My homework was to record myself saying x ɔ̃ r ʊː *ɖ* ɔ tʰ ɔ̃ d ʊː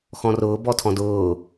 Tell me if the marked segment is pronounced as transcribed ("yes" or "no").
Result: no